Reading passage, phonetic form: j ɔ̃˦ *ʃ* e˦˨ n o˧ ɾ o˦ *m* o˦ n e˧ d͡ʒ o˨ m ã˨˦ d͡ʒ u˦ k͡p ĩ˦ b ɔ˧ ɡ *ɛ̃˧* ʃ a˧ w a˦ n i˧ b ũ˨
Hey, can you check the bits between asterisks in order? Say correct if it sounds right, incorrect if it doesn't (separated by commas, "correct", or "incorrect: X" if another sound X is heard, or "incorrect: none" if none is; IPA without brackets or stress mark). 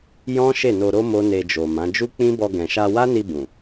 correct, correct, incorrect: ɛ̃˨